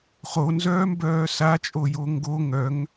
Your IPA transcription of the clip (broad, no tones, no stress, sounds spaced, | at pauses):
χ o n z œː m b œː s a t͡ʃʼ o j o ŋ ɡ o ŋ œ ŋ